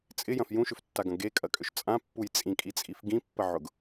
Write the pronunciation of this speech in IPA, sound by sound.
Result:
t͡sʼ ɪ j ɐ̃ f j ũ ʃ ʏ f tː a ɡ ɐ̃ ɡ e kʼ ɐ kʼ ʏ ʃ t͡sʼ ã pː u j t͡sʼ ĩ kʼ i t͡sʼ i f ɡ ĩ pː ə ʕ ʊ ɡ

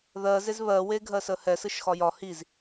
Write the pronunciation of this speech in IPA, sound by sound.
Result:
ð ɜ z e z β ɜ w e ɡʱ ɜ s ə h ɛ s ɯ ʃ x ɒ j ɒ h i z

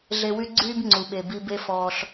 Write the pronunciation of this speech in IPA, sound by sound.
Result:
ɮ e˧ w y˦ ɡ͡ǀ yː˦ b ŋ͡ǀ u˨ ɓ e˨ b i˧ b e˦ f ɔː˧ ɬ

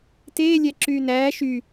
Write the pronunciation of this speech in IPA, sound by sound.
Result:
t eː lʲ æ ǁ yː n æː ʃ y

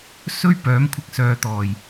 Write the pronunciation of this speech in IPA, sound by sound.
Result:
s ɵ˥ ɥ p œː˨˥ m kʷʰ ɪ˧ k̚ s œː˨ t̪ ɔː˨˩ j

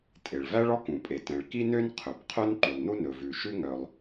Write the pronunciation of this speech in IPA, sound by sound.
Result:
tʼ e˩ ɭ v æ˥ ɭ ɔ˥ k ũ˩ pʼ e˩ t ɛ̃˩ ɭ k i˥ n ø˥ n qʰ ɵ˩ b qʰ œ˥ n ǃ y˩ lˠ n u˥ n ɵ˩ v ʉ˩ ʃ ʉ˥ ŋ œ˩ lˠ

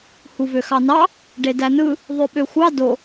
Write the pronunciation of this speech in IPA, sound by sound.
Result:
h u v ø x ɑ n ɑ | ɖ e d æ n ɯ | ðˤ ø ɓ ø xʷ ɑ d o

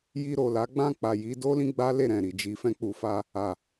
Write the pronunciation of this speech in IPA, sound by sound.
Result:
j i˧ ɾ o˨ l a˨˦ ɡ͡b ã˦˨ k͡p a˨ j i˨˦ d o˦ l ĩ˦ ɡ͡b a˦ l e˦˨ ɾ ɛ̃˨ ɾ i˨ d͡ʒ i˨˦ f ɛ̃˧ k͡p u˨ f a˧ | a˨

